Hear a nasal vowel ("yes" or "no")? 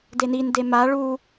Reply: no